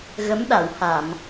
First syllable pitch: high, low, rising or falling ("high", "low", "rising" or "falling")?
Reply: rising